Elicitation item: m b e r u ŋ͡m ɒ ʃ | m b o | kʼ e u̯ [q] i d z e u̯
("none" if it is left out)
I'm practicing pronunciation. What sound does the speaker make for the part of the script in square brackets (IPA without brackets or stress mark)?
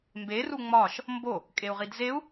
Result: ʁ